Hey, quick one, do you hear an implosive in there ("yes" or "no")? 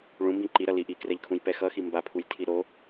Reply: no